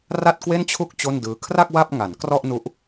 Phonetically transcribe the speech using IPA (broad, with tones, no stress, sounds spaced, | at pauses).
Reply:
r a˥˩ t̚ k w e˥˩ n t͡ɕʰ u˥˩ k̚ t͡ɕ o˥˩ n d ɯː˦˥ kʰ r a˥˩ k̚ w a˥˩ p̚ ŋ a˩˦ n k r ɔ˥˩ ʔ n u˦˥ ʔ